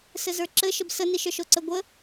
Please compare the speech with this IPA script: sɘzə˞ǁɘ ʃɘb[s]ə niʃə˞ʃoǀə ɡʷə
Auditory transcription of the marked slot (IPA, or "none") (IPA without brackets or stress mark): s